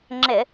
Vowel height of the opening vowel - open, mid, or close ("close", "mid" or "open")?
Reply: close